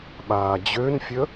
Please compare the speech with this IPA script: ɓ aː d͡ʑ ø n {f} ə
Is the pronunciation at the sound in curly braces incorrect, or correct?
incorrect